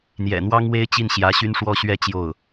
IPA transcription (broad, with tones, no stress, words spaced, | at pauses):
n̪jɛ̰˨˩n̪wɑ˥ŋwe˥ɪ̯ t͡ɕi˥˩nɕjä˧˥ ɕy˥nʂwɔ˥ ɕɥɛ˥˧ t͡ɕjo˥˩ʊ̯